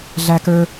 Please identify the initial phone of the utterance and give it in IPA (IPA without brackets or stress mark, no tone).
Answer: ɮ